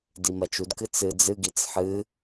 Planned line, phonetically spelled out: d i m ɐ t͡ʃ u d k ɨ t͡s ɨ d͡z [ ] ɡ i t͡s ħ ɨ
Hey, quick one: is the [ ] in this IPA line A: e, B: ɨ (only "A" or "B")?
B